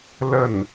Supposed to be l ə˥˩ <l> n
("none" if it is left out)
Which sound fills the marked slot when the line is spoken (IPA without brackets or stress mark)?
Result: none